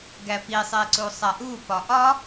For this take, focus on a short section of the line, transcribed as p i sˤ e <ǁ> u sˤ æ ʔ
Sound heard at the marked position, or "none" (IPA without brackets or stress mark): ǀ